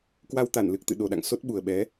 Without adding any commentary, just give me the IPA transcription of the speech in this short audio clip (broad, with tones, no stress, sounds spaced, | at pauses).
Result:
k w a˧ w t̪ a˧˩ n l ɨ˨˩ k̚ t̪ ɨ̰˧˨ ɗ o˨˩ ɗ a̰˧˨ ŋ s o˦˥ t̚ ɓ u˨˩ ə̯ ɓ ɛ˨˦